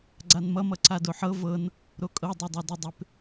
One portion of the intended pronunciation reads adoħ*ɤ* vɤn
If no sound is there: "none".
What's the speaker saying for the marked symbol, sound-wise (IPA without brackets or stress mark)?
ɤ